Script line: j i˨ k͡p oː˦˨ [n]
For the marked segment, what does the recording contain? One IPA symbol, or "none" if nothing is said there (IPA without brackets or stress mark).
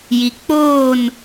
n